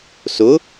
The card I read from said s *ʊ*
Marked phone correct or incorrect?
correct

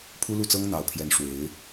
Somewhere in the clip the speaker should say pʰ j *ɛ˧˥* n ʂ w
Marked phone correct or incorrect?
correct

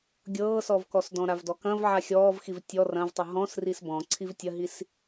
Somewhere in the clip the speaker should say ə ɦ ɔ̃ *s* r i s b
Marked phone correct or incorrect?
correct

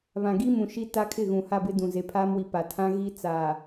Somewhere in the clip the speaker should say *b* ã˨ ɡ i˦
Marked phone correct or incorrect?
incorrect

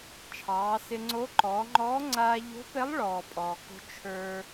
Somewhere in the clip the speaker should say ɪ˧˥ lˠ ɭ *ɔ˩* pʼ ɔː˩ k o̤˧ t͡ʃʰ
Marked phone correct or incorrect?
incorrect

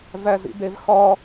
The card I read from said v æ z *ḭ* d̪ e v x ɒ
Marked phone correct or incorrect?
correct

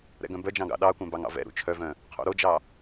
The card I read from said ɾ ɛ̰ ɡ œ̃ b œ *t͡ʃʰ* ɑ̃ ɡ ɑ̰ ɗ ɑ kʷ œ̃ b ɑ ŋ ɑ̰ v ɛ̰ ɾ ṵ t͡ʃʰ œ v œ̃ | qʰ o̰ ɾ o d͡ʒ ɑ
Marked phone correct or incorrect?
incorrect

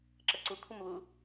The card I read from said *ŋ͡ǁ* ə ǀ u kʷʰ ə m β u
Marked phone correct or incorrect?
incorrect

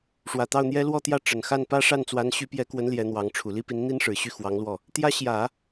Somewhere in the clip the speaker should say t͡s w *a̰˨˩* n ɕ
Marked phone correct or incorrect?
incorrect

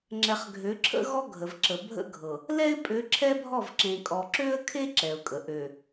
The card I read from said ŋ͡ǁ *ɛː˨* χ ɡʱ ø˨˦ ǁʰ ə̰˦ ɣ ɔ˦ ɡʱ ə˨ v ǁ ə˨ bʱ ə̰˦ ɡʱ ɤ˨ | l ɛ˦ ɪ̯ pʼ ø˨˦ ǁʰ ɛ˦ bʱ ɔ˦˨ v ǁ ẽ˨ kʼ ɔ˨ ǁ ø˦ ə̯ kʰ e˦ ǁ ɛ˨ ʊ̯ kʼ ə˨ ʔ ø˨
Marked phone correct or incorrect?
incorrect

